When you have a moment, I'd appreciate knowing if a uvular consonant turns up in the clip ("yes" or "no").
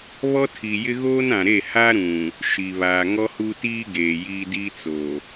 no